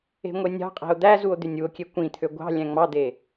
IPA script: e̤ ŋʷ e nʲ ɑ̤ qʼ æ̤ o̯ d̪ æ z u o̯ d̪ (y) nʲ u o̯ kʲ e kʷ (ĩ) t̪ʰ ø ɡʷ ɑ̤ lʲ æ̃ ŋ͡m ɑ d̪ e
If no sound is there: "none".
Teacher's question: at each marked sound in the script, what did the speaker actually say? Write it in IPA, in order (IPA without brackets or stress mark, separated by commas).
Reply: y, ĩ